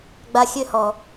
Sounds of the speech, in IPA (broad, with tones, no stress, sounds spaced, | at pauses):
ɡ͡b a˧ xʲ ø˦ h ɔ˨